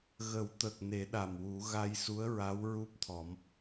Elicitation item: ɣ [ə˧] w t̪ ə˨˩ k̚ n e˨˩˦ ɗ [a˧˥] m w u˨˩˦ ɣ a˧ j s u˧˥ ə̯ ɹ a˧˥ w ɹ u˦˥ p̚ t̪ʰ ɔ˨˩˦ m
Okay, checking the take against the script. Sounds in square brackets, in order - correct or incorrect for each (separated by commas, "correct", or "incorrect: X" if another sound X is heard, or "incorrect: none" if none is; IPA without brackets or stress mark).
incorrect: ə˨˩˦, incorrect: a˨˩